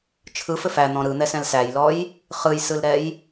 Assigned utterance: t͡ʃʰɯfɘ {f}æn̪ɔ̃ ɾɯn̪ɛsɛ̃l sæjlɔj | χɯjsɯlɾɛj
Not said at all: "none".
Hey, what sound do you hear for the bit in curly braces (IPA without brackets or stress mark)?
f